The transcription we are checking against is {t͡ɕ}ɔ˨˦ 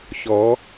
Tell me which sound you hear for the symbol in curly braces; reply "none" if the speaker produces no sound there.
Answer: ɕ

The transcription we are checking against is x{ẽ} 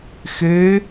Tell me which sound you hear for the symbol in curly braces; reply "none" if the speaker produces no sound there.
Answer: e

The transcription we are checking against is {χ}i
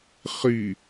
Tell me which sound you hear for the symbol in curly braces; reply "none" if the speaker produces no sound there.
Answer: χ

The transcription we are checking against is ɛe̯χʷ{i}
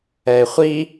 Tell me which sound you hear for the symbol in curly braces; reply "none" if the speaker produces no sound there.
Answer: i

